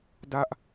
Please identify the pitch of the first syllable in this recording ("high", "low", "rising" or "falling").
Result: falling